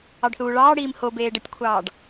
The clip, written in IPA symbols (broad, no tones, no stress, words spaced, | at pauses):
ɑɖθuːɭɑːɽiːm hobeː ɖətʲkʷʰɑːɖ